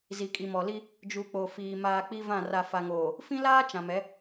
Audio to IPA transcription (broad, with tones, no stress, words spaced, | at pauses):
zi˨kʼi˨mɔ˨li˦ | d͡ʒu˨k͡po˨ fiː˨ maː˨ k͡pi˦vã˦˨ ra˨fa˨ŋoː˨ | fĩ˦laː˦ t͡ʃã˨mɛ˨˦